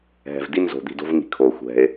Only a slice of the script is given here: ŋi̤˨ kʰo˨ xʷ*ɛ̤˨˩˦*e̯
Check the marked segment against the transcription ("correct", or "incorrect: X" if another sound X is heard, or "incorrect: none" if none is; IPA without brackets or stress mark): incorrect: ɛ̤˨